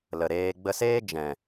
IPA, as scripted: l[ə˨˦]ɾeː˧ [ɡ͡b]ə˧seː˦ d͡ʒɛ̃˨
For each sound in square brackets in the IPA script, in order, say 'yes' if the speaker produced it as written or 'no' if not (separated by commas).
no, yes